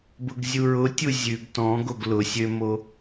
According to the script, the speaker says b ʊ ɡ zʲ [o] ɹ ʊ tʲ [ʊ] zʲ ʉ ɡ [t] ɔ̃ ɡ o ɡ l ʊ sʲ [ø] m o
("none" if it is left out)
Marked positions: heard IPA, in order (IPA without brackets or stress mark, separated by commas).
u, u, t, ø